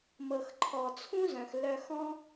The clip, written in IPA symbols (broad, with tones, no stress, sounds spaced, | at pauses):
m ɤ˨ x ǃʰ ɔ˨ t͡sʰ ũ˦ z œ̃˨ x l œ˧ x ɔ̃˦